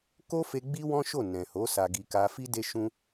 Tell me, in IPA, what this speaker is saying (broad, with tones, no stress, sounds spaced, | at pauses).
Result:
k o˦ f e˧ ɡ͡b i˦ w ɔ̃˦ ʃ o˦˨ n ɛ̃˨ h o˨˦ s a˧ ɡ i˧ k a˧ f i˦ d e˦ ʃ ũ˦